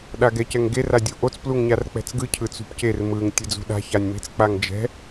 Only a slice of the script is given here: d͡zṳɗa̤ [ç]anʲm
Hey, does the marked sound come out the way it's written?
yes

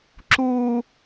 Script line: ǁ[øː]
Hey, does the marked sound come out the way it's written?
no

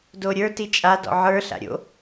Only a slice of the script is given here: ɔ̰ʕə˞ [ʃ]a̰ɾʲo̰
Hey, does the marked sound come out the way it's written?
no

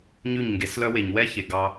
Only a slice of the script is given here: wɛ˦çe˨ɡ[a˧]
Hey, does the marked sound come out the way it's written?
no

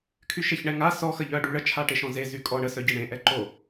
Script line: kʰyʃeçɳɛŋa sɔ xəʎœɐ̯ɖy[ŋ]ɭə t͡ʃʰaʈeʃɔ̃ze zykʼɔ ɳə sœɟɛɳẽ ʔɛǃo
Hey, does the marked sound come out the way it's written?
no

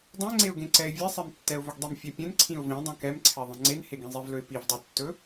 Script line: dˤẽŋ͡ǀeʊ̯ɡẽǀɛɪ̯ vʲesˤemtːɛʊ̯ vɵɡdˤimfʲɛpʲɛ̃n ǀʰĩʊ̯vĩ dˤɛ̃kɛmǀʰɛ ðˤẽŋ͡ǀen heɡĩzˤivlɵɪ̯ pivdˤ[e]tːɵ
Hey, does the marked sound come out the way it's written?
yes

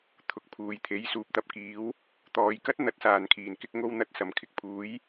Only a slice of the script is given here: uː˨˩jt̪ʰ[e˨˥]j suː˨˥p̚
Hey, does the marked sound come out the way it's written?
yes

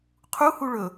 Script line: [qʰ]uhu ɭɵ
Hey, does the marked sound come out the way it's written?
yes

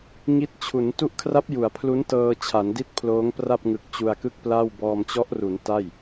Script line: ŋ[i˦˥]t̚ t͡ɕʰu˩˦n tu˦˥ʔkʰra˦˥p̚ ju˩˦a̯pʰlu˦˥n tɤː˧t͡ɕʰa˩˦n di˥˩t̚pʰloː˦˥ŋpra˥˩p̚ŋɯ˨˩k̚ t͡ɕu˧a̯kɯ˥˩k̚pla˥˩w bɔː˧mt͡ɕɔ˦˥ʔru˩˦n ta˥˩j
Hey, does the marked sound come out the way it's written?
yes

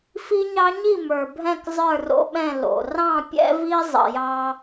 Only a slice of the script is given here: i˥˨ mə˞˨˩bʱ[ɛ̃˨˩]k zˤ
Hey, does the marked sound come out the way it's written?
no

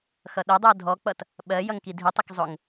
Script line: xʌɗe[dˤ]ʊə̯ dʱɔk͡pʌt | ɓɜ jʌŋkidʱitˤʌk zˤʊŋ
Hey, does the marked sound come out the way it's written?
yes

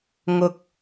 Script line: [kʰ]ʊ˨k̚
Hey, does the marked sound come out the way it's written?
no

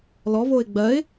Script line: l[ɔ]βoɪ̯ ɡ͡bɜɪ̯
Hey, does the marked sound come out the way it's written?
yes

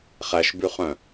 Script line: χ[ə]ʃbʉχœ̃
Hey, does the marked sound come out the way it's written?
no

